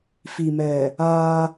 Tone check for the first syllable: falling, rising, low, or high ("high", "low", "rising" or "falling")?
low